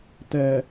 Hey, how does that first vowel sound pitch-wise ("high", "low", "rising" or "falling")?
low